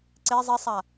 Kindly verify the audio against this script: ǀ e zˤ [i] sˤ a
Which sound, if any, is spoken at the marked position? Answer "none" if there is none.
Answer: i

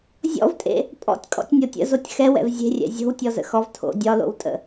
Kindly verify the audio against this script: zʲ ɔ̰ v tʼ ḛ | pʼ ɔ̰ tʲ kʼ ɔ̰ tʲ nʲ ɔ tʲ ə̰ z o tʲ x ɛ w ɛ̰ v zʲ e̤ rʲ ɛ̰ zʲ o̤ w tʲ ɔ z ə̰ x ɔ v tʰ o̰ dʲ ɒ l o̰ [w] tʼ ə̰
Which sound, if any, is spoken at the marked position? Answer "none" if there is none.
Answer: w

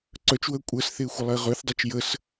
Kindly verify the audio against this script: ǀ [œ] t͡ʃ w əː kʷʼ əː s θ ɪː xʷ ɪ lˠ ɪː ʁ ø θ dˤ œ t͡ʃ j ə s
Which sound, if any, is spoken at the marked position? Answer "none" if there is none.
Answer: œ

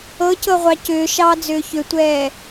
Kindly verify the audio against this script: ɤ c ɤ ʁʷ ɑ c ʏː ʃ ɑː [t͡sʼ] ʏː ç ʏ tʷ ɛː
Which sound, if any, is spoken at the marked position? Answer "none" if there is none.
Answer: d͡z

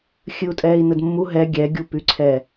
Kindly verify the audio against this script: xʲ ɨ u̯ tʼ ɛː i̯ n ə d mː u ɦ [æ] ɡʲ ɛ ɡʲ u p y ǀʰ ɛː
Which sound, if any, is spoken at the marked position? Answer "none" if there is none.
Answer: ɛ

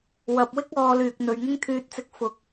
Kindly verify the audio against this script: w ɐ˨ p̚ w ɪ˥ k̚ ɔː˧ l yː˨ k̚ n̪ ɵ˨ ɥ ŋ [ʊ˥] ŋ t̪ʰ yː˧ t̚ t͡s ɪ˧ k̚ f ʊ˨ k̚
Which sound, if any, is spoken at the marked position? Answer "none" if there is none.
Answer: ʊ˥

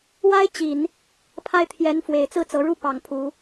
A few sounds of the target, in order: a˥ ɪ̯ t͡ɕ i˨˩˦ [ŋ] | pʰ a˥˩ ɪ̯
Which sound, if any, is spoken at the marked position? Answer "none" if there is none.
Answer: n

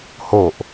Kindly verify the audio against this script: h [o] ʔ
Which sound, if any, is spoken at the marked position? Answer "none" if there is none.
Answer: o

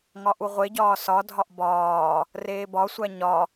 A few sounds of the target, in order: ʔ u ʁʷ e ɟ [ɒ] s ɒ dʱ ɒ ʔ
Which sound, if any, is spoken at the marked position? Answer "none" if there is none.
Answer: ɒː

